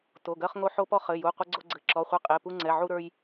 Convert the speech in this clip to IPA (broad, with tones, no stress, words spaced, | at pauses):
to˩˧˩ɡɜ˧χŋo˧ ħo˧pɔ˧ χɘ˩˧˩ju˩˧˩ qʷɘ˧ɡ͡ǀo˧ ɡ͡ǀɘ˩˧˩ǁɔ˩˧˩χʷe˧ qʼe˩˧˩pu˧ŋ͡ǀɛ˩˧˩ ʕu˧ɾə˞˧j